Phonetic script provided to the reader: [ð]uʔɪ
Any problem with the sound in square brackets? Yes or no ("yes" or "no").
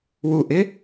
yes